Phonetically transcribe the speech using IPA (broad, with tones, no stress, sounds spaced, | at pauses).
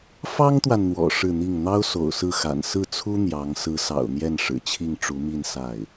f ɑ˥ ŋ t̪ w a˨ n n̪ w ɔ̰˨˩ ʂ ɻ̩˥˧ n̪ i˥˩ ŋ n̪ ɑ˥ ʊ̯ s o̰˨˩ ʊ̯ s ɹ̩˥˩ x a̰˨˩ n s ɹ̩˥˩ t͡sʰ u˥ n̪ j ɑ˧˥ ŋ s ɹ̩˧˥ s ɑ̰˨˩ ʊ̯ n̪ j ɛ˥˩ n ʂ ɻ̩˨˩ t͡ɕʰ i˥˩ ŋ ʈ͡ʂ u˧˥ m i˥˧ n s a˥˩ ɪ̯